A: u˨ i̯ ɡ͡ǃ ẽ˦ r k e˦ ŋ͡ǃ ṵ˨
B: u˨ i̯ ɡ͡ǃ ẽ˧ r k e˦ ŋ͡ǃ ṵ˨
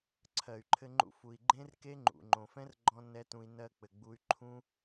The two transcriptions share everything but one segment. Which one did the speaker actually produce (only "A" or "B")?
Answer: A